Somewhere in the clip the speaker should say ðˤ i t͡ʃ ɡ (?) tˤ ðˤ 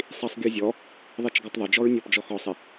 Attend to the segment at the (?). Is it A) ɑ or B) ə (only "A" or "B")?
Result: A